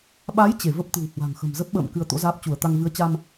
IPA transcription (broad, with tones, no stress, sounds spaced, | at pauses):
ɓ a˨˦ j t͡ɕ e˧˩ v ə˦˥ p̚ t̪ ɨ̤˨˩ w h w a̤˨˩ ŋ x ə̤˨˩ m z ə˦˥ p̚ ɓ ə̰ː˧˨ m k ɨ˧ ə̯ t̪ o̰˧˥ z aː˦˥ p̚ t͡ɕ u˧˩ ə̯ t̪ a˧ ŋ v ɨ˨˦ ə̯ t͡ɕ a˧ m